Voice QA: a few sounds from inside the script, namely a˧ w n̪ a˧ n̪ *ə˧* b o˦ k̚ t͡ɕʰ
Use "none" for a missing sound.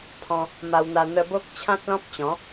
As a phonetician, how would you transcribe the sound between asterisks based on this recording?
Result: ə˧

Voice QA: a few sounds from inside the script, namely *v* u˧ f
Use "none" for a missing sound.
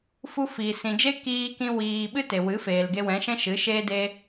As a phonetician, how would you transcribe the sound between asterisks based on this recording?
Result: f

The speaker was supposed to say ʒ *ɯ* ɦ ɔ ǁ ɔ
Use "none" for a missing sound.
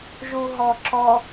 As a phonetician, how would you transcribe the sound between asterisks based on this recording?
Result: u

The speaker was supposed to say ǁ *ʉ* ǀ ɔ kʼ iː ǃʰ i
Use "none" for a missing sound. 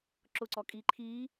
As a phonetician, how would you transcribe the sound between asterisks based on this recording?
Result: ʊ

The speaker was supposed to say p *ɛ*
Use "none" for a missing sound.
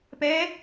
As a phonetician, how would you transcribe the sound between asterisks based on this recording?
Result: ɛ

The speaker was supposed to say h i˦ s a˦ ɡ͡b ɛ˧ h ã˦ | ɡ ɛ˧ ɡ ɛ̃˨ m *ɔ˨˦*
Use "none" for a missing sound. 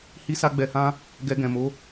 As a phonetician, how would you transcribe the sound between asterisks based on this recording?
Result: o˨˦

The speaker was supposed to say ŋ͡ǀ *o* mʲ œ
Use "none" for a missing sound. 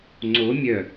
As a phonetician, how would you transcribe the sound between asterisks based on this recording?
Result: o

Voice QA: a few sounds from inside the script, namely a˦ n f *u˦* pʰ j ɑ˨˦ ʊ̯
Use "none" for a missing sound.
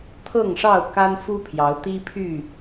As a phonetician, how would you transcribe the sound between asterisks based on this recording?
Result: u˦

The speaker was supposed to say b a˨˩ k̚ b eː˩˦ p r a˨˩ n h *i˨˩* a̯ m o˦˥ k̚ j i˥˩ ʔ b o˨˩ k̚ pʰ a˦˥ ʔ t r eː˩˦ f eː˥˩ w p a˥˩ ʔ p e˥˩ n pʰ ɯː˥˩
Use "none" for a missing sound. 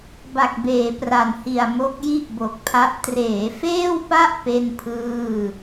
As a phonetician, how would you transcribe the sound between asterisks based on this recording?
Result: i˨˩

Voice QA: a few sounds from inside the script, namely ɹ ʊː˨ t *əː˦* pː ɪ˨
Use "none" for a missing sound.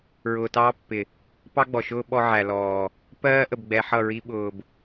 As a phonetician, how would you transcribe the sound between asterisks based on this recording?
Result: ɑː˦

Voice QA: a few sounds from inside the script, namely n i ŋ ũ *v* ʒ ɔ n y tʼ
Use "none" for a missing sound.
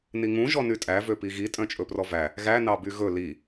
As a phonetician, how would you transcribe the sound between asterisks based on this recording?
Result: none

